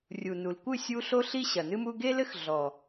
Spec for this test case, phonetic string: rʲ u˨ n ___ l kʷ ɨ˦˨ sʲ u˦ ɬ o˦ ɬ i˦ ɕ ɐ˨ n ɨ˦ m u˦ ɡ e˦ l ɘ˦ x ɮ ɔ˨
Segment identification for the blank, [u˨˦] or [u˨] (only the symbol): u˨